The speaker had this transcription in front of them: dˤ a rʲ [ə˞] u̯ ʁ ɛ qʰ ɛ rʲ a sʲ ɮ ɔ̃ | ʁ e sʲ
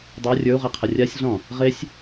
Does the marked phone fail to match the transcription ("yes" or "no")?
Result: no